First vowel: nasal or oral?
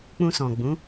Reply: nasal